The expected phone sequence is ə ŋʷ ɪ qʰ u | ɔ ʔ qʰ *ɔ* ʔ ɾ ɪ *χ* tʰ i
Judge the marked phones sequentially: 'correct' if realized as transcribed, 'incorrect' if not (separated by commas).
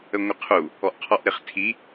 correct, correct